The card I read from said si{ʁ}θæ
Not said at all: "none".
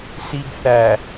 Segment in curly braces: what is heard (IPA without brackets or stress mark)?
ɡ